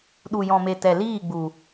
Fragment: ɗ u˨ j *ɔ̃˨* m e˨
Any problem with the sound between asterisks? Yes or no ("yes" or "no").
no